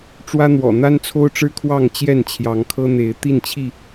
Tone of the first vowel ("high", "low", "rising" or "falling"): high